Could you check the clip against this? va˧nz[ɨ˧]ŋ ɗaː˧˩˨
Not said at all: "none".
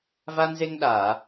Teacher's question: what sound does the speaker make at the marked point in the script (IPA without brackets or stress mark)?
e˧